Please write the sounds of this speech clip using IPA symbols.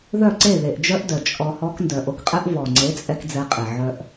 ð œ˦˨ ǀ e˦˨ ð e˨ ʔ d͡ʒ œ˦ ʔ d œ˨ t͡ʃʼ ɔ˧ h ɔ˦ k n d œ˨ ʔ o˧ k qʼ ɛ˦ ʔ v ɔ˨ ŋ͡ǀ e˨˦ t͡sʼ ɛ˧ k d͡z ɛ˧ qʼ e˨ ʕ œ˧ ʔ

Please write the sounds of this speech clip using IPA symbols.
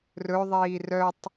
r ɵ ðˤ iː r œ tˤ

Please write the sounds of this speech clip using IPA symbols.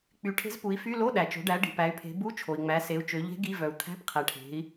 k͡p y˩˧ ʈʰ e̤˧˥ z p u˩˧ i̯ f y˧˥˧ l o˧˥˧ ɗ æ˩ t͡ʃ o̤˩˧ ɖ æ˩˧ ɖ i̤˩ p æ˩˧ y̯ pʰ e̤˩˧ b u˧˥˧ t͡ʃʰ o˩ i̯ ŋ͡m æ˩˧ s e˩˧ u̯ t͡ʃ ø˩˧ ʎ e̤˧˥ ɡ i˧˥˧ v œ˩ u̯ t̪ʰ æ̤˧˥˧ p qʰ æ˩ ʈʰ e̤˩˧ i̯

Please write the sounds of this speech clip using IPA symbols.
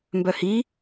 m b œ h i

